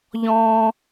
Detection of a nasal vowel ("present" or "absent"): present